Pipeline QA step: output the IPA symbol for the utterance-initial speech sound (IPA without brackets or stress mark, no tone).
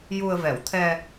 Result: j